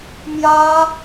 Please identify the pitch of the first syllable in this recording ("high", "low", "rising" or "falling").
high